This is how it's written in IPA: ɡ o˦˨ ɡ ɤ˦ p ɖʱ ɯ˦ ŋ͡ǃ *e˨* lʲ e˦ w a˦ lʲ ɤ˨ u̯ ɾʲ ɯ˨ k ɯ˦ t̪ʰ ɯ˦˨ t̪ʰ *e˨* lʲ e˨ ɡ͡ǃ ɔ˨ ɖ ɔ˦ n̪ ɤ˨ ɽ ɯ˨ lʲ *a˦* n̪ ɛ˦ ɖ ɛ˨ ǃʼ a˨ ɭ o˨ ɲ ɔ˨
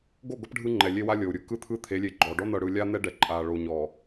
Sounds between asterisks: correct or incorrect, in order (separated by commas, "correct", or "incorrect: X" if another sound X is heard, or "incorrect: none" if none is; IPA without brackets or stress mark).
incorrect: ɛ˨, incorrect: e˨˦, correct